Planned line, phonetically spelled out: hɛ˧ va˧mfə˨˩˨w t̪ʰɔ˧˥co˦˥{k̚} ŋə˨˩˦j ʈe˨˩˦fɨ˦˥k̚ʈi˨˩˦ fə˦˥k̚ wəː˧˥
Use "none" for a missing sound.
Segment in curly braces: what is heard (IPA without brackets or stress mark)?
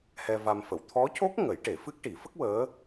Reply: k̚